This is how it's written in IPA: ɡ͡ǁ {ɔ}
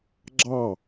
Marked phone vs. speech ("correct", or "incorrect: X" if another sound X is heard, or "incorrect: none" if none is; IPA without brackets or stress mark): incorrect: ɑ